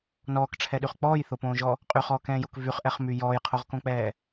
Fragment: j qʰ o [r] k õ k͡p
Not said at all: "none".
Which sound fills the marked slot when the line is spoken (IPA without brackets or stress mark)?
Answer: ʁ